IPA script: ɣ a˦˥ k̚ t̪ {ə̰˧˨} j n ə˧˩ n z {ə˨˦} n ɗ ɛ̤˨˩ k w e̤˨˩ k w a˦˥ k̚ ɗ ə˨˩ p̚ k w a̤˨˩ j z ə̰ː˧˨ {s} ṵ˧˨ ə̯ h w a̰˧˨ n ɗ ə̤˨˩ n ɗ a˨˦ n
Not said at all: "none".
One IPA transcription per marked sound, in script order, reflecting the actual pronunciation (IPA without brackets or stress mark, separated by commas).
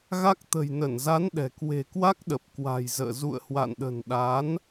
ə̤˨˩, a˨˦, z